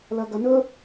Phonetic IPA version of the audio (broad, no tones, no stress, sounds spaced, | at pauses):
l ɐ ɡ ɐ n ɵ